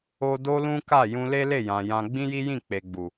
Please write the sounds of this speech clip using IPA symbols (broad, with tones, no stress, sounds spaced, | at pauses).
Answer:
o˧ d o˦ l ũ˦ k a˦˨ j ũ˧ l e˦ l e˦˨ j ã˨ j ã˧ ɡ͡b ĩ˦ j i˦ j ĩ˦˨ k͡p e˨ ɡ͡b u˨